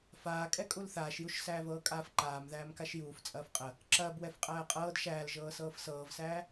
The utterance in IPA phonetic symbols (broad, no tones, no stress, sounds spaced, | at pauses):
f aː kʼ ɛ kʼ u l θ aː ʃ j u ʃ s æː v ɤː kʼ aː f ǃ aː m ð æː m k a ʃ j uː f t͡sʼ ɐː f qʼ ə | ǁ ɐː b w ɛ f qʼ æː qʼ ɤː d ʃ æː l ʒ ɤː s ɤː f s ɤː v s æː